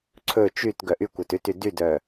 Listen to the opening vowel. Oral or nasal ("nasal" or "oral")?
oral